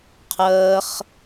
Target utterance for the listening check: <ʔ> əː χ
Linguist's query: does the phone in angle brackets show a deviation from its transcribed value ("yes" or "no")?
yes